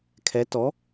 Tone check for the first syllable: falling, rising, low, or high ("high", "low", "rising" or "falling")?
rising